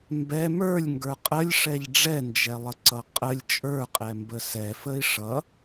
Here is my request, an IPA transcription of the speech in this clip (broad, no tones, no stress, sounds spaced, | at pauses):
m b ɛ m ə˞ lʲ ŋ ɡ ə˞ qʼ ə lʲ ʂ ɛ ʎ ɖ͡ʐ ɛ n d͡ʒ ɛ lˠ ə ǀ ʌ qʼ ə lʲ t͡ʃʼ ə˞ qʼ ɛ m b ə s ɛ f ə i̯ ʂ ʌ